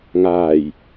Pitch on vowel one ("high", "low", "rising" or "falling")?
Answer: low